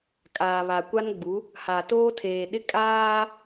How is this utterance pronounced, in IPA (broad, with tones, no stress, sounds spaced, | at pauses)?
kʼ aː˨ β a˨ kʷ a˦ n ɡ͡b u˨˦ | h a˨ t oː˦ tʰ eː˨ ɗ ɪ˦ kʼ aː˦